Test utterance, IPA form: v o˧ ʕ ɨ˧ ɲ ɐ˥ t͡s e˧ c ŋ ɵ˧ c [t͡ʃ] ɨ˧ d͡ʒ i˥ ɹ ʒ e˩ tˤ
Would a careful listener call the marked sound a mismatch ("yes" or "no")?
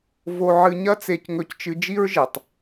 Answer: no